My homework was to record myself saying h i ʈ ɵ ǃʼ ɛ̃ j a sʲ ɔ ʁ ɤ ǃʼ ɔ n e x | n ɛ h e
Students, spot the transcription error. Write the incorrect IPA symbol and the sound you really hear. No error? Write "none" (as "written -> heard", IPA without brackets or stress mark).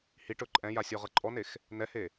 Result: none